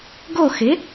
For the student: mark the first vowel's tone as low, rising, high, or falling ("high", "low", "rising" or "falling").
falling